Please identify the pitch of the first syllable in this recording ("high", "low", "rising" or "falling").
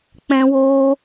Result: high